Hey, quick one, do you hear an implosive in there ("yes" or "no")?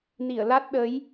yes